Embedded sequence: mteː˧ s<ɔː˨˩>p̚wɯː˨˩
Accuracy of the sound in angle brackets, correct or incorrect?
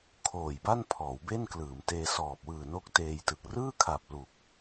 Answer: correct